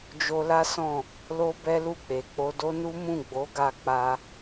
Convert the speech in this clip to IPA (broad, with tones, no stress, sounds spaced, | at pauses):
d͡ʒ o˧ l a˦ s ɔ̃˦˨ | l o˦ b ɛ˦ l u˦˨ k͡p e˨ k͡p o˧ d o˦ n u˦ m ũ˦˨ ɡ͡b o˨˦ ɡ a˧ k͡p a˧